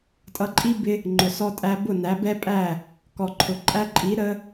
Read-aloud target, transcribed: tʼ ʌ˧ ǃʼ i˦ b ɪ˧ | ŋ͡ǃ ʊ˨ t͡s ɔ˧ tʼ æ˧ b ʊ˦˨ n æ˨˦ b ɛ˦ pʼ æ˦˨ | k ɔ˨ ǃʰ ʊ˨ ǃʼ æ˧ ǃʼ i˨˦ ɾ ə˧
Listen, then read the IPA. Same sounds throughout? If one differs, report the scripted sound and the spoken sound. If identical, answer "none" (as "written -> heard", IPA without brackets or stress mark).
t͡s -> s